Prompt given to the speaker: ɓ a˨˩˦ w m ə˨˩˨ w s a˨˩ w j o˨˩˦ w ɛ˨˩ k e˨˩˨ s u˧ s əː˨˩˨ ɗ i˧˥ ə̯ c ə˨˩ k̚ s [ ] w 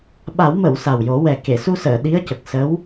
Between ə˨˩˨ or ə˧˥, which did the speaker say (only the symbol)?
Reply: ə˧˥